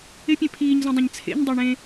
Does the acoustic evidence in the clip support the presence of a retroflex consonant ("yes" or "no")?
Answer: yes